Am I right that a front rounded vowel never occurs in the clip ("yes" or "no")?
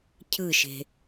yes